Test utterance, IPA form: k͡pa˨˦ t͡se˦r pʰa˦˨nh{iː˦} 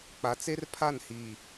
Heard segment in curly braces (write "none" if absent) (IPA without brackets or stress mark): iː˨